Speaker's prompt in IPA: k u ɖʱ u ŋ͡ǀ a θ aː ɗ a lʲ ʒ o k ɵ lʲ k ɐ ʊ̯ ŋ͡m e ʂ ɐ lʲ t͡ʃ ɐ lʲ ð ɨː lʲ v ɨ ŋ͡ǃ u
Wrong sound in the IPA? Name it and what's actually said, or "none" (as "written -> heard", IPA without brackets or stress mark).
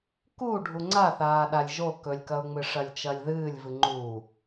e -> ɨ